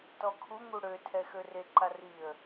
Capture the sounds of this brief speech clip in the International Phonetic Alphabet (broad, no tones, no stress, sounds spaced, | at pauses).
t ɔ kʰ u ŋ u ɽ ø tʰ ɛ x ø r e ǃ a r i ə̯